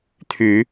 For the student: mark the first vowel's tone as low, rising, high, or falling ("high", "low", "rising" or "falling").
low